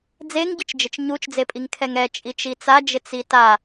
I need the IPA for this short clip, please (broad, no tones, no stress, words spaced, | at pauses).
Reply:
d͡zeŋɟɪt͡ʃd͡ʒɪt͡ʃ ɲut͡ʃd͡zepʼiŋ kʰɛŋɛ t͡ʃʼit͡ʃit͡sad͡ʒɪ t͡sita